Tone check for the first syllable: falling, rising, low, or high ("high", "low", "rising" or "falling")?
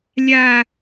high